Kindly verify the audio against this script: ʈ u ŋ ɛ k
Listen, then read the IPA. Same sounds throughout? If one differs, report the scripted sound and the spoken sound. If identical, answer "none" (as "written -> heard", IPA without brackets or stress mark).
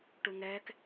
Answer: none